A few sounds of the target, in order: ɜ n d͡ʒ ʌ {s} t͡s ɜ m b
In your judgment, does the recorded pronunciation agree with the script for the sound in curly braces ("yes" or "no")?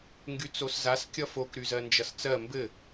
yes